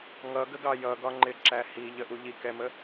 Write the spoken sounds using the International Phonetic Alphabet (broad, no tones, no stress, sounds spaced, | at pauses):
ŋ ʌ ɡ ə ɡ ɑ j ʌ ɡ ɒ ŋ͡ǃ ɪ ǁ æ h i ʎ ə ʔ u ʎ i k ɛ m ə